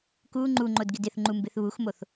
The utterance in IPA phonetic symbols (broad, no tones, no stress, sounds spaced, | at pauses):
k u ŋ͡ǃ u ŋ͡ǃ o d ɡ ɪ d ɪ θ ŋ͡ǃ u m b ɪ θ β u x m o θ